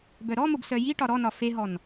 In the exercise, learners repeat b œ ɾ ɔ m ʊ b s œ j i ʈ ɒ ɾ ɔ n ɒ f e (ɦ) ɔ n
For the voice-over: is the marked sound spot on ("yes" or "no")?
yes